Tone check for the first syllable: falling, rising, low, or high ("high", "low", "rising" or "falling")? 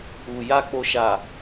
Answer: low